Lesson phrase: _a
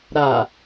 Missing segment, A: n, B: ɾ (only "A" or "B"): B